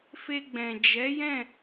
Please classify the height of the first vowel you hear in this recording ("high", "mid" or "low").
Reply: mid